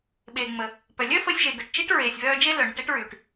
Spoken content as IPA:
ɓ eː˩ ŋ͡m ə˩ | p œ˩ lʲ œ˥ f əː˧ sʲ ʒ e˩ ɡ əː˩ ʈ t͡ʃ i˥ ʈ ɹ eː˩ sʲ v œː˧ d͡ʒ e˥ l œ˩ ɳ ə˧ ʈ e˥ ʈ ɹ yː˩ ʈ

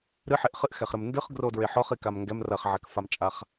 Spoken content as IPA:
ɾ ɨ ħ e ʔ χ ɨ ʔ x ɛ χ ɾ ɘ m n d ɨ χ ɡ r o d ɹ e ħ ɔ χ i k a m ŋ ɡ ɛ m r ɐ χ ʕ ɛ k f a m t͡ʃʼ a χ

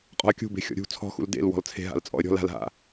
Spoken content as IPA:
qʼ ɔ̤ ə̯ kʲ ṳ b e̤ xʲ ɔ̰ ɾʲ ṳ t͡sʰ ɔ̤ x ṵ l d ḛ l w ɔ̤ l t͡sʰ e̤ ɦ a̰ l t͡sʼ ɔ̰ ə̯ ɾʲ ɔ̤ l a̤ l ɦ a̰

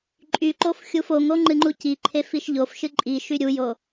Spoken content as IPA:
ǃʼ y ǃ o f xʲ u f o ŋ o ŋ͡ǃ ɨ ŋ͡ǃ u c i ǃʰ e f i ʃ ʎ o f ʃ ɨ ǃʼ i ʃ y ɾʲ u j o

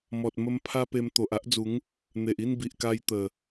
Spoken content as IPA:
m ɔ˨ t̚ m ə˧ m pʰ a˦ p e˧ m t̪ o˨ ʔ a˦ ʔ d͡z u˨˦ ŋ | n̪ e˨ ʔ i˥˧ n b i˨ ʔ k a˧ j t̪ ə˨˩

